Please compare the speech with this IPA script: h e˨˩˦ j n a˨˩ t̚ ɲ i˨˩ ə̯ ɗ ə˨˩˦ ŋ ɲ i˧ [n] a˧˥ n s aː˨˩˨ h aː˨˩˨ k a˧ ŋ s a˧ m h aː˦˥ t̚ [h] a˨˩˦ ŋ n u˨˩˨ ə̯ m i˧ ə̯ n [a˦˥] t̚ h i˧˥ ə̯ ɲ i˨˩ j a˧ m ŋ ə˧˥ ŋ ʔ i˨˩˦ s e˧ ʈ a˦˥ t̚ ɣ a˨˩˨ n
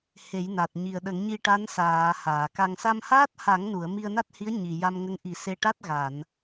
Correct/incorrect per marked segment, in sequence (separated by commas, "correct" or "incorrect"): incorrect, correct, correct